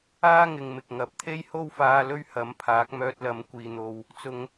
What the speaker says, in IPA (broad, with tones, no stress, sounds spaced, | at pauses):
aː˥ ŋ ɪ˨ ŋ m ɪ˨ k̚ ŋ ɐ˨˥ p̚ t̪ʰ e˥ j h o˥ w f aː˧ l ɵ˥ ɥ h ɐ˨˥ m pʰ aː˨˥ k̚ m œː˧ t̚ l ɐ˨˧ m kʷ iː˨ n̪ o˨˧ w | t͡s ʊ˨˧ ŋ